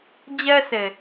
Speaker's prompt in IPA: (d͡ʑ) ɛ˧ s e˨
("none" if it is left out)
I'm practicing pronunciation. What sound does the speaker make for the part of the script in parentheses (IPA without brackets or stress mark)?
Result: d͡ʑ